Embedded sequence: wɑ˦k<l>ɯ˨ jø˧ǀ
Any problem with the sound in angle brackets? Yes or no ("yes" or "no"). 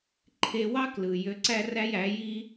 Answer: no